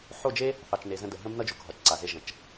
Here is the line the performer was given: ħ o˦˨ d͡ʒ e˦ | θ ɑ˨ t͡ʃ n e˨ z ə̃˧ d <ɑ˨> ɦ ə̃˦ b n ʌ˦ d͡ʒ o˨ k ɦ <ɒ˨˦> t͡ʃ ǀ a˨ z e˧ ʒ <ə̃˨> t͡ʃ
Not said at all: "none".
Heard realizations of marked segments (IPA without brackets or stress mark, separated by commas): ə˨, ɒ˨˦, ə̃˨